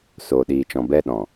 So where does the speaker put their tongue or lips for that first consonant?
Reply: tongue tip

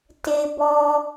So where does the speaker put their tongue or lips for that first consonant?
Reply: tongue tip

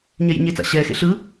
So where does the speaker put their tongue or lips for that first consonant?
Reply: palate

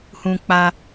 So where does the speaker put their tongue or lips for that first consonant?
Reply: throat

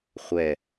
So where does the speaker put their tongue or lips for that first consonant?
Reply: uvula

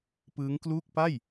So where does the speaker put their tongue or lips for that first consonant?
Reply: lips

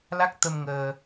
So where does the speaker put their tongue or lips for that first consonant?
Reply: tongue tip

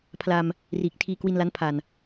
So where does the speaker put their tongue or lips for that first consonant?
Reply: lips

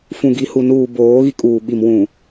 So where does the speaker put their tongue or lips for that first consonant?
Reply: lips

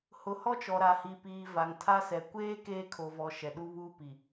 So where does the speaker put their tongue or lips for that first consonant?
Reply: throat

